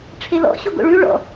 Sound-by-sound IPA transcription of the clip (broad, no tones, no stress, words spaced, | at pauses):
ʈ͡ʂʰelɔ̰ ɕoɡo̰ɭʉ ɭɔ̰